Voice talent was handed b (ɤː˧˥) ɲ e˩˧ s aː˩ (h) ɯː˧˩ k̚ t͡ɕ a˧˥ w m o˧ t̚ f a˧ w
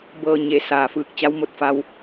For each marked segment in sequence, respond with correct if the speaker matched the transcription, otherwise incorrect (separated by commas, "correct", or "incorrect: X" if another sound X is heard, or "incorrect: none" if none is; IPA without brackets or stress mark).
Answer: incorrect: ɤː˩, incorrect: f